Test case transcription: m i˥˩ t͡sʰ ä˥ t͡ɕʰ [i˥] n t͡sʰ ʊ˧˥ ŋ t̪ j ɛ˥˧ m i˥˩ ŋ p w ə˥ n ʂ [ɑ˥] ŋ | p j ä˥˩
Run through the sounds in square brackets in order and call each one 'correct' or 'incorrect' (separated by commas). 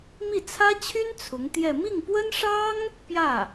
incorrect, correct